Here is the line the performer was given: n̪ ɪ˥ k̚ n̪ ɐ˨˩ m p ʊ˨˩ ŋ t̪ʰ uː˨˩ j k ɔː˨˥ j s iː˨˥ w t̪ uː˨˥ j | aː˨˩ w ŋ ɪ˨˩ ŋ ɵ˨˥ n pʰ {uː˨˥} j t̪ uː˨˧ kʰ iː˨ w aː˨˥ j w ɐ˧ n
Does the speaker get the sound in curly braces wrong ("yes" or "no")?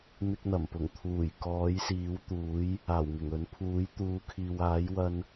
no